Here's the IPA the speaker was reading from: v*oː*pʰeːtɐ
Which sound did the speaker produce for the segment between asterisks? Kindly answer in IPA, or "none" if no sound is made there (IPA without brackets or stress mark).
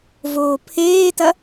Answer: oː